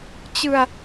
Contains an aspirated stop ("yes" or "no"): no